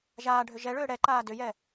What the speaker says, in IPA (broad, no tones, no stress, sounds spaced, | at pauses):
ʒ aː ɖʱ ʏ ʒ ɛ ɭ ʏː ɽ ɛ ǃ aː d ʏ j ɛ